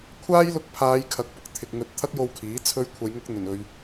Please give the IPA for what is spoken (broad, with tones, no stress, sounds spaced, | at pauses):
kʷʰ aː˥ j l ʊ˧ k̚ pʰ aː˨˧ j kʰ ɐ˨˥ k̚ p ʊ˨ k̚ t̪ʰ ɪ˨ k̚ ŋ ɵ˧ t̚ t̪ʰ ɐ˥ k̚ j o˧ w kʰ iː˨˥ t͡sʰ ɵ˧ ɥ kʷʰ ɐ˨˧ j ŋ ʊ˧ k̚ n̪ ɵ˨˩ n ɵ˨ ɥ